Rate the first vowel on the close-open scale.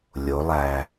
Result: mid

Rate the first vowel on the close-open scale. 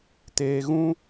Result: mid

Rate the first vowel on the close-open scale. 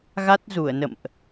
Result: open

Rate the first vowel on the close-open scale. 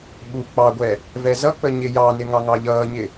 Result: close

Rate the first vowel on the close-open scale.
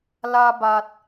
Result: open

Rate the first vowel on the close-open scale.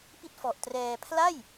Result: close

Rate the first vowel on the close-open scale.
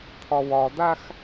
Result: open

